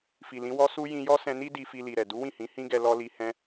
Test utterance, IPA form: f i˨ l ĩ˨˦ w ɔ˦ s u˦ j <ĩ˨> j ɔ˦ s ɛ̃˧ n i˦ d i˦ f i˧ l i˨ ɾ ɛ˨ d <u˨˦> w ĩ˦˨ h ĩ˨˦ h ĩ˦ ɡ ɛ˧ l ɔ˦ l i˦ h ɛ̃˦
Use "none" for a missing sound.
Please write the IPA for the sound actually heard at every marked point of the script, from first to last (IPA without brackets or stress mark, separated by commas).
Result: ĩ˧, u˨˦